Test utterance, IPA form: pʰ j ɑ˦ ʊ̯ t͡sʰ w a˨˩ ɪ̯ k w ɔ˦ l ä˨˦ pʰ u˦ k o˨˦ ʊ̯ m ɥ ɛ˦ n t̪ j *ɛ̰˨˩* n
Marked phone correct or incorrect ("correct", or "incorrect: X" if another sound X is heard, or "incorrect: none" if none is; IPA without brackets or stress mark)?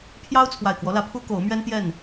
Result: incorrect: ɛ˥˨